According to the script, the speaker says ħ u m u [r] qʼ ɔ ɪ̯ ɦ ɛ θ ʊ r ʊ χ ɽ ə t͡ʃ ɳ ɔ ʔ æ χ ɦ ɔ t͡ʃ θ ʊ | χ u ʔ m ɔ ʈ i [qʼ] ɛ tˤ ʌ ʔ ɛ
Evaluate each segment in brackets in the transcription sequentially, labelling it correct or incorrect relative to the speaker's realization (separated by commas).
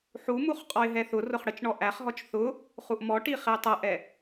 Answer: incorrect, incorrect